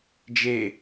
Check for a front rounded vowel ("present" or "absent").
absent